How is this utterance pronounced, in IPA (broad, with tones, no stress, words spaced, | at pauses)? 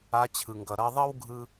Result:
a˧˥t͡ɕʰɯ˩ŋɡʌ˩ ɾʌ˧ðˤʌ˥wɡʱɯ˧